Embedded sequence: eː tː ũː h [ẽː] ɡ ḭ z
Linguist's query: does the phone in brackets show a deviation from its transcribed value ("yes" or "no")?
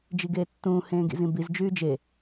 no